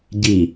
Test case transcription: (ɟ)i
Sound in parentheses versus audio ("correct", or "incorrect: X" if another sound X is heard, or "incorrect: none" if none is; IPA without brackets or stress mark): correct